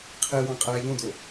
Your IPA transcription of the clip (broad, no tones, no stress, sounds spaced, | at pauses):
qʰ e w ɑ̃ qʼ æː ʎ õ d o